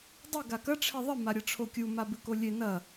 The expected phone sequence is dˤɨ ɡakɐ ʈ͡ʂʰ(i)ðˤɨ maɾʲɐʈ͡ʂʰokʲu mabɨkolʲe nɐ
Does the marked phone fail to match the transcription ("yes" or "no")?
yes